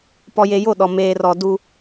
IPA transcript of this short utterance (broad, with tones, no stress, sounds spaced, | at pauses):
p ɔ˨ j e˨ j o˦˨ ɗ ɔ˨ m eː˨ r ɔ˨ d u˦